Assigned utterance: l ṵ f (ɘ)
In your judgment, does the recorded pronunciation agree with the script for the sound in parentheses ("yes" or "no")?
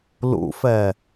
no